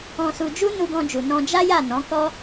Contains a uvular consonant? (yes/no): no